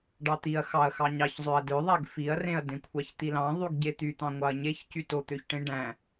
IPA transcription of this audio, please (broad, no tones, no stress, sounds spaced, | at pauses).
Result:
ɖ ɑ t̪ i ɐ̯ x ɑ ɐ̯ x ɑ ɲ ɑ ç zˤ ø ɐ̯ d ø ðˤ æ ɡ f i ɐ̯ r ẽ ɐ̯ d ẽ kʷʰ ɑ ç t̪ i l ɑ̃ ðˤ y ɡ ɟ e t̪ y t̪ ɑ̃ ŋʷ ɑ ɐ̯ ɲ e ç c y t o t̪ ø ç ʈ ẽ ɖ æ̃